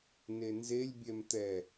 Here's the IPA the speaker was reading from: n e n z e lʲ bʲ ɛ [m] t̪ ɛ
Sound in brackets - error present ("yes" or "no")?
no